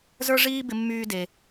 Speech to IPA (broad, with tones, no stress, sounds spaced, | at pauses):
z ə˞˥ ʐ iː˥ b ɪ˧ mː yː˧ d e˩